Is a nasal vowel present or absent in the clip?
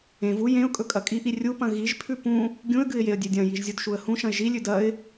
present